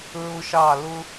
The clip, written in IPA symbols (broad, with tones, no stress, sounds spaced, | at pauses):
ɹ ʊ˦ ʃ ɑ˦˨ l ʊ˦